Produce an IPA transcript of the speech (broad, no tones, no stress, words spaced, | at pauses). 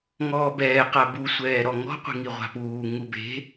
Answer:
ŋɔːbɛː qabusʷɛː ɾɔŋɔ̤qʷi̤ŋi ʁʷa̤puː ŋube̤